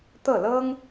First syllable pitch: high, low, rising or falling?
falling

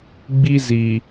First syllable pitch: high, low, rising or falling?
high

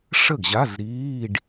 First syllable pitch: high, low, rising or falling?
falling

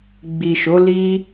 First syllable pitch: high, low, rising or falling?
low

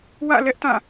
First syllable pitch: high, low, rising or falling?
falling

